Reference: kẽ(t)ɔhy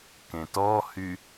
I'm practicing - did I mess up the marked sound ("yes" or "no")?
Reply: no